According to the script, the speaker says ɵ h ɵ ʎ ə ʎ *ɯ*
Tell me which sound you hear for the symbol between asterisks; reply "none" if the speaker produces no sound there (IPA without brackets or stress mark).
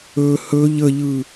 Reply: ɯ